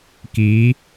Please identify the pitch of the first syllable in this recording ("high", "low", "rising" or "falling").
rising